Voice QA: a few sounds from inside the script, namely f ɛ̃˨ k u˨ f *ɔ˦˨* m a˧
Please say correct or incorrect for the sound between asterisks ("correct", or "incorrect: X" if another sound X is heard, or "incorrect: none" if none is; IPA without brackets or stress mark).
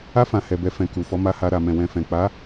incorrect: ɔ˨˦